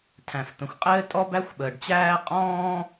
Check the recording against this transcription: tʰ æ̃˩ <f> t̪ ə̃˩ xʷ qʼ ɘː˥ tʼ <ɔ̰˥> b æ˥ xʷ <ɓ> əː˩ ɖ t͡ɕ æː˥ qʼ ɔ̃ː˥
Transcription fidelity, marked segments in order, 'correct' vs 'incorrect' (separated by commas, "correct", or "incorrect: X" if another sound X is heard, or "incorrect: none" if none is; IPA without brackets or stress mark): correct, incorrect: ɔ˥, correct